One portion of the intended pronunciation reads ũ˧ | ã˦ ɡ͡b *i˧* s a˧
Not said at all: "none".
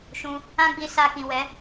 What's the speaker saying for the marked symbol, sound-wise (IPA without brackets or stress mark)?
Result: i˧